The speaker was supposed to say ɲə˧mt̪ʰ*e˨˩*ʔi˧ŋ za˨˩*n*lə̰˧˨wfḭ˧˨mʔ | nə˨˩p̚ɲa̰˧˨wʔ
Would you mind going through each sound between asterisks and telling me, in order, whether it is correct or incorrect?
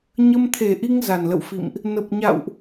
correct, correct

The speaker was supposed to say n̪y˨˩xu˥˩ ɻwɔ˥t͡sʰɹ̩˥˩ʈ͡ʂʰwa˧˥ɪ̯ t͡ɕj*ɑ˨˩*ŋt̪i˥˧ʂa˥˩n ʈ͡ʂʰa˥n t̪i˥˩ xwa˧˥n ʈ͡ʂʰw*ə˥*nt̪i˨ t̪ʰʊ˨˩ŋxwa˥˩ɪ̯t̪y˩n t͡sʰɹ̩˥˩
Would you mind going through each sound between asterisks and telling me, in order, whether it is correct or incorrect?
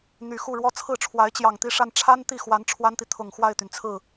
correct, incorrect: a˥

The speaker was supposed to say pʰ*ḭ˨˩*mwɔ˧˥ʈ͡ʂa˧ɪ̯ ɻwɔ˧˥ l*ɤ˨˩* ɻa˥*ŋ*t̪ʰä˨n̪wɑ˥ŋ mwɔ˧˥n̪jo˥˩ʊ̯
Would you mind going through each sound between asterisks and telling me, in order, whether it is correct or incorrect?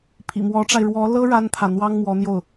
correct, incorrect: ɤ˥, incorrect: n

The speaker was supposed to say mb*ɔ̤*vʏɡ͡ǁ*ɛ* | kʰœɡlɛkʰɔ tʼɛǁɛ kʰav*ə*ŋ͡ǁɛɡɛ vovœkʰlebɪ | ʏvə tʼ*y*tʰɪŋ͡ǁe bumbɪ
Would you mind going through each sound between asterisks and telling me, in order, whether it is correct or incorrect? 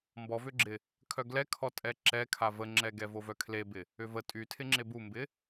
incorrect: ɔ, incorrect: ɪ, correct, correct

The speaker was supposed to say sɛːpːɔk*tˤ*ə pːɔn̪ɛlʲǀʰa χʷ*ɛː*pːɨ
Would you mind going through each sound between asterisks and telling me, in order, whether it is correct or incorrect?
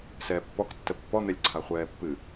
incorrect: tː, correct

